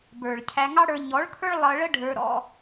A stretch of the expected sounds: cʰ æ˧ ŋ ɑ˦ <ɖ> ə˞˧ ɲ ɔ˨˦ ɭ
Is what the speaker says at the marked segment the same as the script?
no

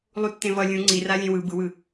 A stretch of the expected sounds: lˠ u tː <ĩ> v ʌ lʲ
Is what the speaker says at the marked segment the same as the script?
no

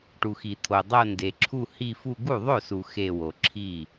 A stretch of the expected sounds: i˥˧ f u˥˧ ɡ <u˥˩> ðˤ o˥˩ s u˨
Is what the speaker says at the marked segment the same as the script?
yes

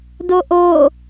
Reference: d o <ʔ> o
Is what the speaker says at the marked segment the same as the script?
yes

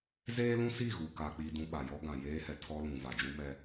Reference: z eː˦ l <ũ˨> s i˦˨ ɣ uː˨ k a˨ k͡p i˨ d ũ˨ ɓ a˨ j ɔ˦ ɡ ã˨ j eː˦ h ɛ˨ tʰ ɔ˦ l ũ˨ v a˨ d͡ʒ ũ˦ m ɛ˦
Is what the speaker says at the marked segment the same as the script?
no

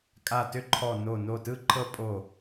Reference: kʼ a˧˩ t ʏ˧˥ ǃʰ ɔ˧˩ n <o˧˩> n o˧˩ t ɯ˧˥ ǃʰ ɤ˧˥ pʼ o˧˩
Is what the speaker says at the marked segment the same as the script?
yes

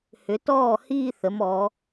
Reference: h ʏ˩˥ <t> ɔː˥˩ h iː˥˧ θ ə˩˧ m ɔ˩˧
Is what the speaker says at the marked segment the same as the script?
yes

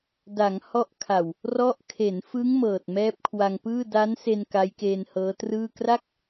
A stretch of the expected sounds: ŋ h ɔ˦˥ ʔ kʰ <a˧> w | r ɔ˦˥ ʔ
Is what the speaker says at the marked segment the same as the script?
no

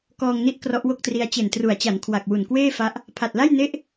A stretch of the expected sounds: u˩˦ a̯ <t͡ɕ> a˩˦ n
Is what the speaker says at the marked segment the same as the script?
yes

